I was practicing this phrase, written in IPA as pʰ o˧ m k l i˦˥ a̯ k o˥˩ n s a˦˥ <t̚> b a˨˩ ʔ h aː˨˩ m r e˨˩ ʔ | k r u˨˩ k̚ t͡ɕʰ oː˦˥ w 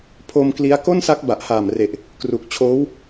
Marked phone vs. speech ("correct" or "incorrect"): incorrect